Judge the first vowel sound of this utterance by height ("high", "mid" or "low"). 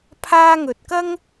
low